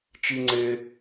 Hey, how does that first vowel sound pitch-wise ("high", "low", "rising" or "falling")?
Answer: low